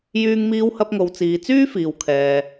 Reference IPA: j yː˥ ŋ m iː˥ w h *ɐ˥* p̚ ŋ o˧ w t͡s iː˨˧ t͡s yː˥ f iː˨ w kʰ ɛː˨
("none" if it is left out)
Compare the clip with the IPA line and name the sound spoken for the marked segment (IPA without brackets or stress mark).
ɐ˥